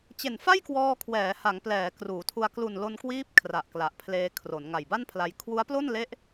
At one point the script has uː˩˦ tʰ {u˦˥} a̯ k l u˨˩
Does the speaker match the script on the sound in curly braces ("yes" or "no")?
no